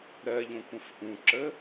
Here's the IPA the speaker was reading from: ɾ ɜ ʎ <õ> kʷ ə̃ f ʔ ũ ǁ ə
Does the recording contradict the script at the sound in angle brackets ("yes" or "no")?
no